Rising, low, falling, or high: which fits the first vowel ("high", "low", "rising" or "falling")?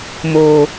high